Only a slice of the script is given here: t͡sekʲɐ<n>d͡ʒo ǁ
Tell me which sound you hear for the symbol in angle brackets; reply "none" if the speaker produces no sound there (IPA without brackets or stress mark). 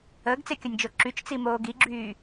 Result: nʲ